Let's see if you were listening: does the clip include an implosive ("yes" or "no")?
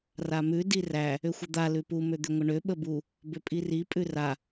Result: yes